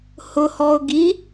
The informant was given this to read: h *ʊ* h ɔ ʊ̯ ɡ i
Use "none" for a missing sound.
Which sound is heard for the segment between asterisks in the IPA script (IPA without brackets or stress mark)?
ʊ